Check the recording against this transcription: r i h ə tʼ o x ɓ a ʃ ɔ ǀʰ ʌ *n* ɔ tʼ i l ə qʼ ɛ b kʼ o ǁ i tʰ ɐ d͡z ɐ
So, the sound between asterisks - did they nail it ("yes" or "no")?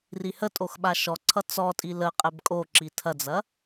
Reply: no